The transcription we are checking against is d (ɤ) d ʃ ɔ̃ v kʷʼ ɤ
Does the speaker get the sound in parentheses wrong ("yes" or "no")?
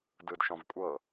yes